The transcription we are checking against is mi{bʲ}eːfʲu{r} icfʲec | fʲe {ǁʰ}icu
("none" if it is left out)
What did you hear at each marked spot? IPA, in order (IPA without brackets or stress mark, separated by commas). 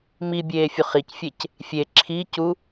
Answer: bʲ, χ, ǁʰ